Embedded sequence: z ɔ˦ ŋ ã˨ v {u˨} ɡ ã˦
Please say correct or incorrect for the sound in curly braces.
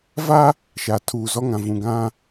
incorrect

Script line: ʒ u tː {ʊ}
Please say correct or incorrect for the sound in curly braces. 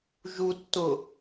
correct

